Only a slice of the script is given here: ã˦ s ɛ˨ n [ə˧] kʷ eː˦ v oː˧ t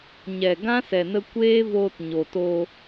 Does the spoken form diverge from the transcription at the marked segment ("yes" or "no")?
no